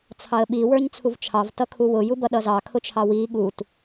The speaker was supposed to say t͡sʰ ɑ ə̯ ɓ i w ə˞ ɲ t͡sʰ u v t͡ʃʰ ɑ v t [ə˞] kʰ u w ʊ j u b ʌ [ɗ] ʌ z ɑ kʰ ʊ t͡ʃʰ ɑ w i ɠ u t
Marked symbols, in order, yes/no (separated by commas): no, yes